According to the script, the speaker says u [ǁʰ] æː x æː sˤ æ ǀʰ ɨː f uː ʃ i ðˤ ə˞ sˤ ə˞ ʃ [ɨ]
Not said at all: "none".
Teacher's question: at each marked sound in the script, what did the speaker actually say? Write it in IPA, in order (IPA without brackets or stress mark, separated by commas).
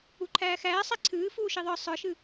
ǃʰ, ɨ